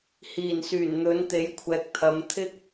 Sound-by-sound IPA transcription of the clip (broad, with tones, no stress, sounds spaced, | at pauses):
h iː˨˩ n s yː˨˩ n n̪ ɵ˨˥ n t̪ e˨˥ j kʷʰ ɛː˨ k̚ t̪ʰ ɐ˨˧ m t̪ʰ ɪ˥ k̚